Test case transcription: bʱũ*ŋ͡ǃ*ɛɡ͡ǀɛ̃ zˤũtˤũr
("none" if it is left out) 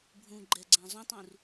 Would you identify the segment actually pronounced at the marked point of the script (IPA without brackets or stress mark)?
ɡ͡ǃ